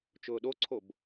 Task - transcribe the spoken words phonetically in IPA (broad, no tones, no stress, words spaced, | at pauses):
t͡ʃʊːɗoǀʰob